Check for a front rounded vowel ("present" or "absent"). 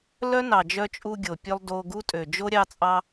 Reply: present